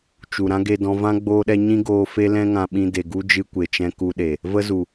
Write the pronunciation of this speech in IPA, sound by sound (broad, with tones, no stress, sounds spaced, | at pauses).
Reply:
t͡ʃ u˨ ɾ ã˦ ɡ e˧ d ɔ̃˧ v ã˦ ɡ͡b oː˦ ɗ ɛ˦ ɲ ĩ˦ ɡ oː˧ f e˦ l ɛ̃˦ ŋ ã˧ ɓ ĩ˧ d e˨ ɡ u˦ d͡ʒ ɨ˧ kʷ e˨ t͡ʃ ɛ̃˧ k u˧ ɗ e˨ | v ə˦ z u˨